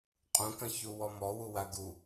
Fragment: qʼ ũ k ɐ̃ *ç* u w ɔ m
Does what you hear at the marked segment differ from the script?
no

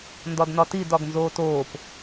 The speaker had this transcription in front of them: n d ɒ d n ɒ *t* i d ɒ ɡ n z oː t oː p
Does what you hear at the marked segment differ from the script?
no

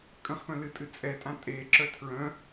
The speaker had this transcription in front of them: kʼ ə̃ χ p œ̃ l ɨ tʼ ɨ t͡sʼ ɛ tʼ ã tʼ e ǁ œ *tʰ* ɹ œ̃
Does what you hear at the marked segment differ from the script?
no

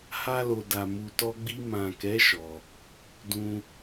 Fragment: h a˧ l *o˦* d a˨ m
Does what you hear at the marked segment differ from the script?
yes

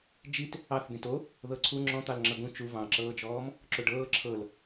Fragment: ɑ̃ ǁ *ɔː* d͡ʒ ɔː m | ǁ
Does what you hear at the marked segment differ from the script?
yes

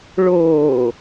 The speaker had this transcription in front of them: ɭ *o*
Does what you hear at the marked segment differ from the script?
yes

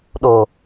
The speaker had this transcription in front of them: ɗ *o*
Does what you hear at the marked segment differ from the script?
no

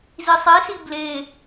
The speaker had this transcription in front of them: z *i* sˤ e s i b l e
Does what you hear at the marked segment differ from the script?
no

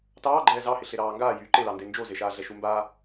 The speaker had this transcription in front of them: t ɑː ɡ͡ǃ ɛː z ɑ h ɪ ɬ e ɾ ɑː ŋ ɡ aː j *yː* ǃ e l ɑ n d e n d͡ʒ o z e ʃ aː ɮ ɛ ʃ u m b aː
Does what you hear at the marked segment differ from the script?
no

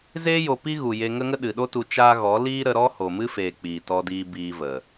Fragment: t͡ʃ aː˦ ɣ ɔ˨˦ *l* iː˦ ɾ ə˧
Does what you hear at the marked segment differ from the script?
no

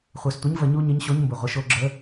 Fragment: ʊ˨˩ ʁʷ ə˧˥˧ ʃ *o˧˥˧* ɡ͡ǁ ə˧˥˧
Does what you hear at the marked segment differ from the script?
no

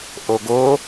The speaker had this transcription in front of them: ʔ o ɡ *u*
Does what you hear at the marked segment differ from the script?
yes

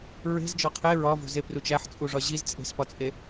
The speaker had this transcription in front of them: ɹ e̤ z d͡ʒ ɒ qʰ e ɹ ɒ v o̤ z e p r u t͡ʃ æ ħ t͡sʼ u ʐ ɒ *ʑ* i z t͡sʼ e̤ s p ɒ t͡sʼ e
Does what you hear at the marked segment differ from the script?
no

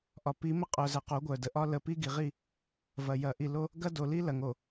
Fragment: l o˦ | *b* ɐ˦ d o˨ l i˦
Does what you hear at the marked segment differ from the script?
yes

